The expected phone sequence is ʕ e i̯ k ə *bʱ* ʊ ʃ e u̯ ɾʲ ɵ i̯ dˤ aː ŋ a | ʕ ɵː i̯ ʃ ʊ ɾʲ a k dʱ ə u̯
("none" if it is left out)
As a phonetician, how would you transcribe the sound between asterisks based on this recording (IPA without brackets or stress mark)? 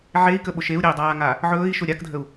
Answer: ɓ